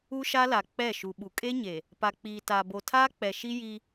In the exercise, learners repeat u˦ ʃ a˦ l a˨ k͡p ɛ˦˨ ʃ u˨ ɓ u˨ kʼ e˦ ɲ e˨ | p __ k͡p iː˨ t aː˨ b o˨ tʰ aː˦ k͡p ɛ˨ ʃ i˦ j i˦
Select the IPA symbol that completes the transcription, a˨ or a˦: a˨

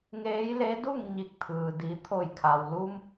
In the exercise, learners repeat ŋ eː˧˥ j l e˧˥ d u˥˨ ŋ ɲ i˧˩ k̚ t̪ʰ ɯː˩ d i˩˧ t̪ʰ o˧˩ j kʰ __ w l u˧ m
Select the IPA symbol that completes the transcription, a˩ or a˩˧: a˩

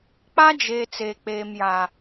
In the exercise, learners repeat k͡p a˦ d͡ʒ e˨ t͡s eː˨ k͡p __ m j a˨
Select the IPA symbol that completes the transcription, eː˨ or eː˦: eː˨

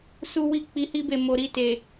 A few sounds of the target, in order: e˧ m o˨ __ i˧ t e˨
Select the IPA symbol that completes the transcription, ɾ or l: ɾ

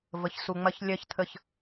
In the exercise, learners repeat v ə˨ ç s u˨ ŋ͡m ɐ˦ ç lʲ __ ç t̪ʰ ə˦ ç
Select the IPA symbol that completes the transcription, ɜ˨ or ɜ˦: ɜ˦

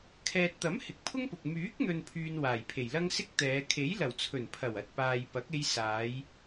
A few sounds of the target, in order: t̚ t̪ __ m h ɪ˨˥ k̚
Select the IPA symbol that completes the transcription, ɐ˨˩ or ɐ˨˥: ɐ˨˥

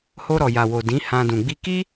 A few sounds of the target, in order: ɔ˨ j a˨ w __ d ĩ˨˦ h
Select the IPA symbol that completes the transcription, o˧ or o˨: o˨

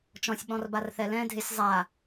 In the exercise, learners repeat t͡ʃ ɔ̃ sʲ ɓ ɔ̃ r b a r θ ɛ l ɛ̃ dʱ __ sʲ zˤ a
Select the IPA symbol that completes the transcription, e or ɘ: e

